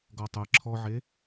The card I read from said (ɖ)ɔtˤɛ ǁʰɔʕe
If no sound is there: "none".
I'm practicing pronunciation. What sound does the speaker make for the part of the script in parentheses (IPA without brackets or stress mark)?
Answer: ɡ